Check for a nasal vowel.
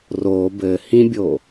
present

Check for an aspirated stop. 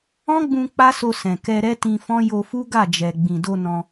absent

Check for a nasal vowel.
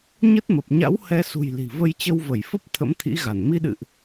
absent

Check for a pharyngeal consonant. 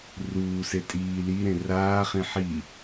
present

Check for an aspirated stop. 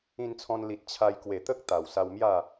present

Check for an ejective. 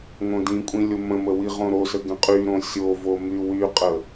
present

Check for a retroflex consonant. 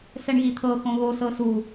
present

